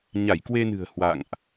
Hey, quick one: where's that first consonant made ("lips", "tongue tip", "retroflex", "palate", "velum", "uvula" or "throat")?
palate